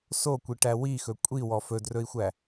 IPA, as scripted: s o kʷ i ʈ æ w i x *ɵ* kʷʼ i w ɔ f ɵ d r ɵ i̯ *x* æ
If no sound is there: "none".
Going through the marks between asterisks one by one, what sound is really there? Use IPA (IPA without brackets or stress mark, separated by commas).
ɵ, xʷ